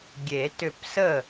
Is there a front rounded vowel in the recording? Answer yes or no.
yes